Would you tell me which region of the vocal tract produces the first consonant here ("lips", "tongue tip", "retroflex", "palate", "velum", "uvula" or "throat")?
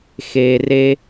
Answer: velum